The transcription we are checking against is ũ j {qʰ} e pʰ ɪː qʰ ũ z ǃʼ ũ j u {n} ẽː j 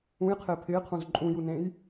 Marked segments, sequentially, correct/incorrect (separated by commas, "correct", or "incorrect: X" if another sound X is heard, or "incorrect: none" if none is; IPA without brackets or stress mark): correct, correct